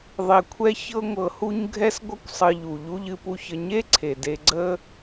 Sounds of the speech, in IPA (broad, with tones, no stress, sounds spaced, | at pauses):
ðˤ e˨ kʷʰ ɛ˦ ç ɤ˦ ŋʷ ɤ˨ h u˦ ɲ ɡʱ ɛ˦ s ɡʷ ʌ˦ kʷ sˤ ɨ˨ ʎ u˩ ʎ u˥ ʎ ɨ˦ p u˦ ç ə˦ ɲ e˦ ǀʰ e˩ d e˨ ɡ͡ǀ ə˥